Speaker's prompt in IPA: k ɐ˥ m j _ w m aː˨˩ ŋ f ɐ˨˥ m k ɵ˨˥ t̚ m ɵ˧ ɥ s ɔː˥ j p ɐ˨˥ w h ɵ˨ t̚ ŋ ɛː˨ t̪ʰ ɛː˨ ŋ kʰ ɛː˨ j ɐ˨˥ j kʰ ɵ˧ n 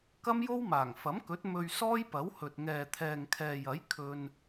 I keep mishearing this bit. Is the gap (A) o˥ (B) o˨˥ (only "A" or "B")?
A